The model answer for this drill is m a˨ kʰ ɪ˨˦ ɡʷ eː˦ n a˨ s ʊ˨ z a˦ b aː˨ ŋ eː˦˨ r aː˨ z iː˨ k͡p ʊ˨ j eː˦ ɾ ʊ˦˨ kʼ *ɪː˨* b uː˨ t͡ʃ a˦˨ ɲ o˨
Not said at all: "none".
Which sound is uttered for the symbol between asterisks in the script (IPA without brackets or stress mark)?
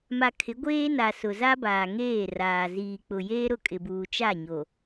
ɪ˨